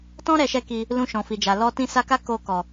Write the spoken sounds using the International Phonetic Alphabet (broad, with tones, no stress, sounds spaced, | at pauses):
t ɔ̃˦ ɾ ɛ˧ ʃ ɛ˦ k i˧ | l ũ˧ ʃ ɔ̃˨ f i˨ d͡ʒ a˨ l ɔ˧ t ĩ˧ s a˧ k a˦ k o˧ k ɔ˨